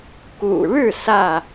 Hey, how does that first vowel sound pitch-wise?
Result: low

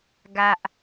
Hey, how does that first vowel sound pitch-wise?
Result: low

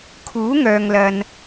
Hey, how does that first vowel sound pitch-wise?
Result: rising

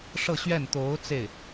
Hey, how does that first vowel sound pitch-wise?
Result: falling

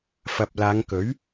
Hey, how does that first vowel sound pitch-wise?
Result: low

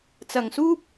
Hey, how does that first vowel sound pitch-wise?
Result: low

